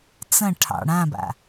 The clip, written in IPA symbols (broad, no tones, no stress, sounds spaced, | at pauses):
t͡s ɐ̃ ʈʰ ɑ̰ ɽ ã b a̰